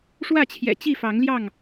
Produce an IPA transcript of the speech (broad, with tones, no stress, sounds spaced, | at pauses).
ʂ w ä˥˨ t͡ɕʰ j ɛ̰˨˩ t͡ɕ i˥˨ f ɑ˨˦ ŋ l j ɑ˥˨ ŋ